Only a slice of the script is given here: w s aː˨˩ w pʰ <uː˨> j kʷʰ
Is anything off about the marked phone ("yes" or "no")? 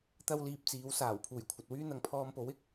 yes